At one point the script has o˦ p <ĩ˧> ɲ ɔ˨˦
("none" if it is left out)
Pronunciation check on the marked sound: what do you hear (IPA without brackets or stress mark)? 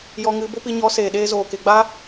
i˧